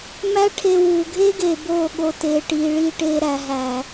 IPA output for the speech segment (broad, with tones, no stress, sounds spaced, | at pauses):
m æ˦ ʈʰ e˧ w uː˨ ɡʱ eː˦ ɡ eː˨ b oː˦˨ ɠ o˨ t eː˨ ʈ iː˨ ɭ iː˧ ʈ eː˧ ɾ æ˨ ɦ æ˨